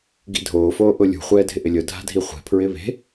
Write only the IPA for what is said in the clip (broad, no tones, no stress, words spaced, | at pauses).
ɡḭdʱoːfoː ʔʊlʲṳ χʷɛːdʱɪʔɪlʲʊ dʱa̤dʱiχʷe̤ pʰɹɪːβe̤